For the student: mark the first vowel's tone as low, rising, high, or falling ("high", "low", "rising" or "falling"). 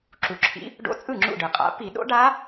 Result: low